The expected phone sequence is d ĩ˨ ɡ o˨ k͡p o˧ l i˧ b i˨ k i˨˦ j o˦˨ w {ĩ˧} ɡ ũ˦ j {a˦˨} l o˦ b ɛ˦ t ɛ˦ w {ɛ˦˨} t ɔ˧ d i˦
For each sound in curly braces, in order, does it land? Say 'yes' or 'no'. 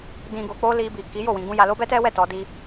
yes, no, yes

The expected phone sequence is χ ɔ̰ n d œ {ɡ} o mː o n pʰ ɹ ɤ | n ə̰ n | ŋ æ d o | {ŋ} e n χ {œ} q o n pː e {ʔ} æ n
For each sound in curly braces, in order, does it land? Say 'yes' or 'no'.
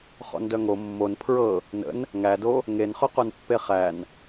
no, yes, yes, no

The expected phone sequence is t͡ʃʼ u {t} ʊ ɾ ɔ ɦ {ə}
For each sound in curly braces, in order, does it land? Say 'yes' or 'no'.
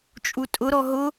no, no

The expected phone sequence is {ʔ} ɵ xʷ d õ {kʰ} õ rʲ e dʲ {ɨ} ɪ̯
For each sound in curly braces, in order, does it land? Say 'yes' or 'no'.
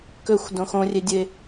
no, no, yes

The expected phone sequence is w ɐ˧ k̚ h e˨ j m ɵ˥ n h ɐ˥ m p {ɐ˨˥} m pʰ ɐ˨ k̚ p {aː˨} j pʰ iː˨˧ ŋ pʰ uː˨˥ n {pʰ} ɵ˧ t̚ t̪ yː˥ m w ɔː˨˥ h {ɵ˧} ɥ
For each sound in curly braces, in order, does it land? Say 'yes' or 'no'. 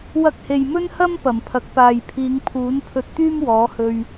no, yes, yes, yes

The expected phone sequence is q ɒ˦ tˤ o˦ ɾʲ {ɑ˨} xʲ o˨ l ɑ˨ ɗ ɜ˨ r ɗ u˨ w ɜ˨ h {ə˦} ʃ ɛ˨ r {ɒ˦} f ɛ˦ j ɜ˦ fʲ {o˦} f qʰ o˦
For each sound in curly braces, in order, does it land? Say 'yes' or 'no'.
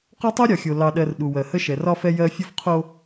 no, yes, yes, yes

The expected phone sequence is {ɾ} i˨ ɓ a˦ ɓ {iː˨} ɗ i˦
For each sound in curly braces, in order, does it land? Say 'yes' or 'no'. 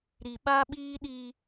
yes, no

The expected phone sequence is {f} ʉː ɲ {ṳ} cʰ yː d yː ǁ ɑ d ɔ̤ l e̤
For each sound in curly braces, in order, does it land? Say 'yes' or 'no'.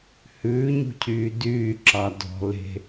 no, yes

